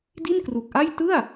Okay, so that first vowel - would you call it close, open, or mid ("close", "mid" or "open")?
close